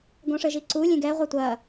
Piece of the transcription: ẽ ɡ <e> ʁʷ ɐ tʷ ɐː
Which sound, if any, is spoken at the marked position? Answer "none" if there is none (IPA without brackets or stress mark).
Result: ɛ